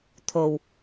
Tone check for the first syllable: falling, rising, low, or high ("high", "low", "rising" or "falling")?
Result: low